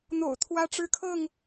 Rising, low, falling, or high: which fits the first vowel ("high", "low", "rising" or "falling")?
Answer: low